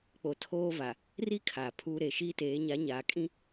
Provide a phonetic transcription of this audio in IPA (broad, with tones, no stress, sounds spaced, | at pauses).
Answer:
k͡p o˨ tʰ oː˦ v a˨ | r i˦ kʰ aː˨ pʰ uː˦ ɾ e˨ ʃ iː˦ t eː˨˦ ɲ a˨˦ ɲ aː˨ kʼ ĩ˦